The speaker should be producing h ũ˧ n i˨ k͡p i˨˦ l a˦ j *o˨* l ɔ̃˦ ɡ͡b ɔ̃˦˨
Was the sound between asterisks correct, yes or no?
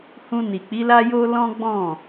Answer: no